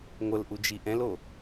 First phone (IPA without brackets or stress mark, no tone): ŋʷ